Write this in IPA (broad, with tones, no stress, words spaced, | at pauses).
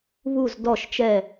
βu˧˩z dɔ˧˩ʃt͡ʃɛ˧˩